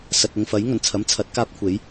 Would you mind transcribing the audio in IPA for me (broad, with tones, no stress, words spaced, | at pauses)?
sɐ˨t̚ʊ˨ŋfɐ˨˥j ŋɐ˨˩nt͡sʰɐ˨˥m t͡sʰɐ˨˥t̚ kaː˧p̚kʷʰe˨˧j